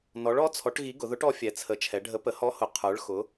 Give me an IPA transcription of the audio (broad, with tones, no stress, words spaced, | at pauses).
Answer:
nɔ˩˧ɭɔ˨˥t͡sʰɔ˩˧ʈ ɣi˨˥ɡʊ˩˧ðʊ˨˥ʈɔ˨˥ fʲɛ˩˧t͡sʰə˩˧t͡ʃʰɛ˩˧ɖʱə˨˥ pə˩˧hɔ˨˥hʊ˩˧ qʰə˞˩˧ɭxʊ˩˧